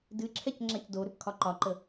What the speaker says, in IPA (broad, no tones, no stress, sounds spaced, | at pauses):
d ɨ ǁʰ ɛ c ŋ͡ǁ a c d o ɾ ʏ p kʰ ɒ ǃ ɒ ǃ ə